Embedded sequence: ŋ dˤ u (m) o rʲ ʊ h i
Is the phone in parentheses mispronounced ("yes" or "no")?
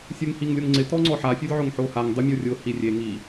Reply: yes